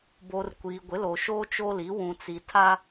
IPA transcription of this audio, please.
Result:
b o˨ r kʷ i˨ ɡʷ ɪ˨˦ l o˨ ʃ oː˦ t͡ʃ o˦ l i˨˦ w ũ˨ t͡s i˨ tʰ a˦

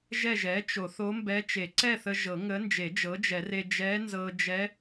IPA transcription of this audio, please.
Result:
ʒ ɛ˥˨ ʒ ɛ˩˥ t͡ʃ o˨˩˦ θ o˧˥ m b ɛ˧˥ t͡ʃ e˨˩˦ ǀ ɛ˥˨ θ ə˧ ʒ ɤ˨˩˦ ŋ ə˧˥ n d͡ʒ e˨˩˦ d͡ʒ ɤ˩˥ d͡ʒ ɛ˨˩˦ r e˧ d͡ʒ ɛ˧˥ n z ɤ˧ d͡ʒ ɛ˧˥

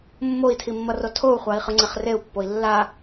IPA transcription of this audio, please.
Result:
mː o i̯ tʰ i mː ʌ r o tʰ o u̯ χʷ a i̯ χ ɯ ŋ͡ǀ ɛ χ r e u̯ pː o i̯ lː a

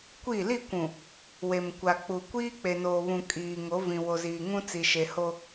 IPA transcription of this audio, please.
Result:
kʷ i˦˨ l i˦˨ kʷ ũ˨ | w e˨ m kʷ a˨ k͡p u˨ kʷ iː˦ k͡p e˨ n oː˨ β ũ˨ kʼ iː˨ ŋ o˨˦ v ĩ˨ w o˨ z iː˨ ŋ ũ˦ t͡s i˨ ʃ e˨ h o˦

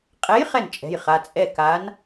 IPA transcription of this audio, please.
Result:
qʼ ɛ˨˥ j χ ɛ˥˩ n t͡ʃʼ ɛ̤˩˧˩ j χ a˩˧˩ t͡sʼ ɛ˥˩ k a˨˥ n

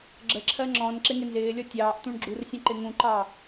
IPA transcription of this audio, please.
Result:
ɡ͡ǁ ə ǁʰ ɜ ŋ͡ǁ ɔ̃ n ǁ ɪ ŋ ɪ n z ɪː lʲ ɔ tʲ ɑː ʔ t̪ ũ ɳ ɡ͡ǁ u r sʲ ə̃ ǃ ɪ ŋ ũ ǃ ɑ

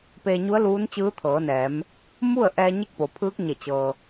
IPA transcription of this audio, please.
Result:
p eː˧ ɲ u˧˥ ə̯ l uː˧˥ n t͡ɕ ɯː˧˥ t̪ʰ ɤː˩˧ n ɛː˩˧ m | m u˥˨ ə̯ ʔ ɛː˧ ɲ e˥˨ k̚ p o˩ pʰ ɯː˧˥ k̚ ɲ e˧˩ t͡ɕ ɤː˩

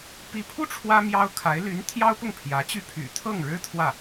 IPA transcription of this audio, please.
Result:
p i˧˥ pʰ u˥ ʈ͡ʂʰ w ä˥ m j ɑ˥ ʊ̯ kʰ a˧˥ ɪ̯ l y˧˥ n t̪ʰ j ɑ˥ ʊ̯ p ʊ˥˩ ŋ pʰ j ä˧˥ t͡ɕ y˥˩ pʰ y̰˨˩ t̪ʰ ɤ˥˩ ŋ ɻ ɻ̩˥ t̪ʰ w ä˥˩

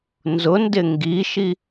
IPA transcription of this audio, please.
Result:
n z ʊ n d ɪ ŋ ɡ i ʃ i

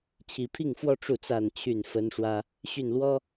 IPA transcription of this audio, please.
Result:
t͡ɕʰ i˨˩ pʰ i˥˨ ŋ f w ɔ˦ ʈ͡ʂ u˥˨ t͡s a˥˨ n t͡ɕʰ y˥˨ n f ə˦ n ʂ w ä˦ | ɕ y˥˨ n l w ɔ˦

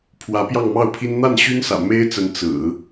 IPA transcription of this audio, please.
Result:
pʰ w ä˧˥ p j ɑ˥˧ ŋ m ɑ˥˩ ʊ̯ pʰ i˥ n n̪ a˥˩ n ɕ y˥ n s ä̰˨˩ m e˥ ɪ̯ t͡s ə˧˥ n t͡s ɹ̩˨˩˦

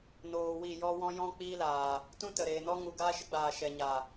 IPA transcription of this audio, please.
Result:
n oː˨ w i˦˨ j ɔ˦ w ɔ̃˦ j ɔ̃˦ k͡p iː˦ l aː˨ | t ũ˦ t ə˨ ɾ eː˨ n ɔ˦ ŋ u˨ ɡ aː˦ ʃ ə˦ ɡ͡b aː˨ ʃ ɛ˨ ɲ a˨

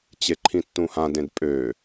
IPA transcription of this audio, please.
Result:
t͡ɕ e ǃʰ ĩ tː ũ h ã d ẽ d pʼ ø

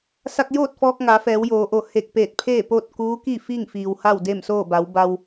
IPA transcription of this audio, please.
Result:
s a˧ k̚ j oː˥˨ t̚ f ɔː˧ k̚ ŋ a˩˧ f ɛː˩˧ w j oː˩˧ ʔ o˧˩ h e˧˩ k̚ p eː˧˩ t̚ pʰ eː˥˨ p oː˥˨ t̚ k uː˧˥ k i˥˨ f iː˥˨ ŋ f iː˩ w h a˥˨ w d e˥˨ m s oː˥˨ b a˩˧ w b a˧ w

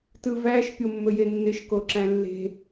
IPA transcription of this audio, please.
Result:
t ɯ v æ ʃ pʲ o mː ɵ j e nː ɪ ʃ k o ǁ æ̃ lː e̤

